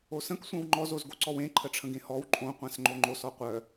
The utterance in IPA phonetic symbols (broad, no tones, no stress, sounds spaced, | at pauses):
o s ə̃ k sʷ œ̃ w ŋ͡ǃ ɔ z o z ɡ o ǀ ɔ w ẽ ǃʰ ə ʈ͡ʂʰ ə̃ ɡ ẽ h ɔ w ǃʼ õ qʷ ã s ŋ͡ǃ o ŋ͡ǃ o s ɔ qʷ œ